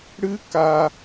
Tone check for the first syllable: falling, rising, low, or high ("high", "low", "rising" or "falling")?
high